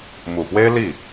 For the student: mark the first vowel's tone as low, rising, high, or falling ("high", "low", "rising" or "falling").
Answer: low